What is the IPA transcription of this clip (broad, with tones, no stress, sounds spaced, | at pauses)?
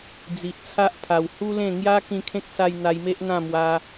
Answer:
d͡z i˨ ʔ t͡sʰ a˦ ʔ pʰ a˨˩ w h u˦ l ẽ˥˧ ŋ j a˦ k ĩ˧ kʰ ẽ˦ k̚ s a˧ j n̪ a˧ j m e˦ ʔ n̪ ã˥˧ m w a˧